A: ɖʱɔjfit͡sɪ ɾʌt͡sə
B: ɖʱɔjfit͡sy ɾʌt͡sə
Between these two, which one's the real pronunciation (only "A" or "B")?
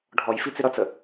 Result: A